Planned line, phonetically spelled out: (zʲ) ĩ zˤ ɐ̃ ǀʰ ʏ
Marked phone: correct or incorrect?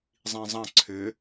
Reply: incorrect